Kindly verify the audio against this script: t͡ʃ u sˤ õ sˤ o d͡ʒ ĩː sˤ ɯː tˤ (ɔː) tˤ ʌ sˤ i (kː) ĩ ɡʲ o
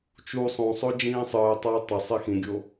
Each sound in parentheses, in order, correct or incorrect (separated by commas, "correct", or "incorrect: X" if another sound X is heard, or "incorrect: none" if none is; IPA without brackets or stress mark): incorrect: ʌː, incorrect: x